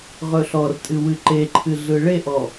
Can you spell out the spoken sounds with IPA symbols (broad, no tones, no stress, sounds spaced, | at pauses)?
ʁ ɵ ɬ ɔ r tʼ ɨ w ɨ ǃ e ǃʰ ɨ ɮ ɯ ɭ e ʔ ɔ